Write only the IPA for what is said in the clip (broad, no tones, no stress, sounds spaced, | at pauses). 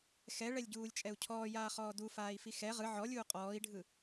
x ɛ ɭ ɛ lʲ ɟ uː lʲ t͡ʃʼ ɛ u̯ cʰ ɔː j aː χ ɔː d u f aː i̯ f i x ɛ ʁ ɯ ʕ ɔ lʲ uː qʼ ɔː i̯ ɖʱ ɯ